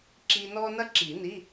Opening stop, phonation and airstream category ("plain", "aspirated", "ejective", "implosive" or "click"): click